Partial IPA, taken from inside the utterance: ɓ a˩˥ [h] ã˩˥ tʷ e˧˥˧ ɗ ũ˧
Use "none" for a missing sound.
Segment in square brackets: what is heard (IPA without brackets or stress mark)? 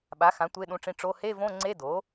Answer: x